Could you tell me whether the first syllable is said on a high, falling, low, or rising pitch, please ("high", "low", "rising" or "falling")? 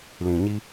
low